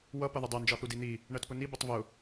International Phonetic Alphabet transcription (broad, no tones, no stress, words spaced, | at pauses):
wʌ pʌðʊdˤɜ nd͡ʒɒθudin̪i | ɳɜtpʊni bʊtˤvʊ